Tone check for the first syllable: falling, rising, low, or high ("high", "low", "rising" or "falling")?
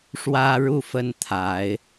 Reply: high